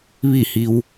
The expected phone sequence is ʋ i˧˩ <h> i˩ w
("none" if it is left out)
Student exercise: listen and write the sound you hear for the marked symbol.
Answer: h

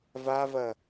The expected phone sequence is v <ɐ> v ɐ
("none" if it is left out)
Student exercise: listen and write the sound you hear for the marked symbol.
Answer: a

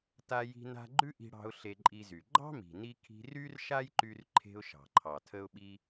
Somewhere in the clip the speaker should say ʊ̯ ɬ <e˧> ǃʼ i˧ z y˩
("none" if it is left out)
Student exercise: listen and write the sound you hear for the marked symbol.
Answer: e˧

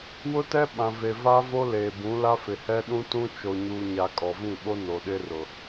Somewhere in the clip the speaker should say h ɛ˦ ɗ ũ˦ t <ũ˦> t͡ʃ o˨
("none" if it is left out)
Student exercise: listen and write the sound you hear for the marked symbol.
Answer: ũ˦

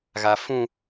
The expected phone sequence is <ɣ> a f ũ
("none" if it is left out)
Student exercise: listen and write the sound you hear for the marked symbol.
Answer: ɣ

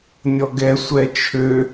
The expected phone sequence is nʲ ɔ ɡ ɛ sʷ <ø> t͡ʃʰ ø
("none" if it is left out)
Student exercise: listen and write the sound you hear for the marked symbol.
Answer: ɛ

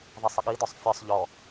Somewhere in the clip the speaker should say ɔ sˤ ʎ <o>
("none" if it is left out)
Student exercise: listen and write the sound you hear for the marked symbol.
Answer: ɔ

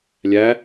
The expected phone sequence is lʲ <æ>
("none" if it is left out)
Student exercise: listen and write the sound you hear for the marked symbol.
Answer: æ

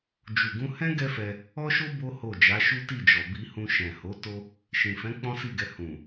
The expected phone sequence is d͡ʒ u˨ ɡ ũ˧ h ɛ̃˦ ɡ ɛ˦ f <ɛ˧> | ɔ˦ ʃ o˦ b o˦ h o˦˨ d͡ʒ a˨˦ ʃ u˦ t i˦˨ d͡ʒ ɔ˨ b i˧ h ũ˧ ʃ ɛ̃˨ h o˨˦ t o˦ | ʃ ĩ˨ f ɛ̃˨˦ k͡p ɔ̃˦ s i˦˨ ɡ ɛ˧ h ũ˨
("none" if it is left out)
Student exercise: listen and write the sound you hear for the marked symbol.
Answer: ɛ˧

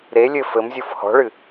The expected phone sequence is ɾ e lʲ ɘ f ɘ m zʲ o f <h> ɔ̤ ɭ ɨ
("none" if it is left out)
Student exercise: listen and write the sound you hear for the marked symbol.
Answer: h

